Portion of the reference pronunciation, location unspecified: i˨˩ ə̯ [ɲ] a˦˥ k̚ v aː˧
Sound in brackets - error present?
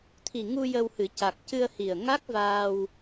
yes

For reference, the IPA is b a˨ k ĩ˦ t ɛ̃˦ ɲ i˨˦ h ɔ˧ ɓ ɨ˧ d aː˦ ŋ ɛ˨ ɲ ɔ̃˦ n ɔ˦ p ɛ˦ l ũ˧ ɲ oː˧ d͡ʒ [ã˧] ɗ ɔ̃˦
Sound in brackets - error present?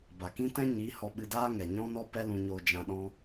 no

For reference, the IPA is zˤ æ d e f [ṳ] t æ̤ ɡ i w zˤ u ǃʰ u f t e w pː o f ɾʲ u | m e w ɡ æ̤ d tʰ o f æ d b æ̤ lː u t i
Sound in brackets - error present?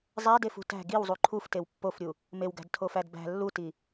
no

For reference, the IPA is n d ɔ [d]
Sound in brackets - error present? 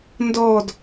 no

